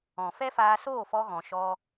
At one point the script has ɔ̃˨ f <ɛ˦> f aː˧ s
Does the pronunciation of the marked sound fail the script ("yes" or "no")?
no